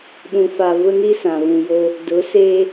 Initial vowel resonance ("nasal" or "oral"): nasal